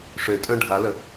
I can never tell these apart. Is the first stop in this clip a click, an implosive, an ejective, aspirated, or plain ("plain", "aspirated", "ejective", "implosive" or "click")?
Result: ejective